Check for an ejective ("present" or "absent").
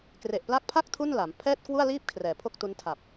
absent